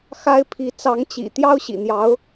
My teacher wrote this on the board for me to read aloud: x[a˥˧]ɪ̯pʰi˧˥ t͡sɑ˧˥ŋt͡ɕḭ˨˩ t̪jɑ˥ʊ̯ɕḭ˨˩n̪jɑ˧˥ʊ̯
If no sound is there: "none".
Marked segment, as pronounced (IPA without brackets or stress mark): a˥